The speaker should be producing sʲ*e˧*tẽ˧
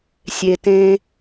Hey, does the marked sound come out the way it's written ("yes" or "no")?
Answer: no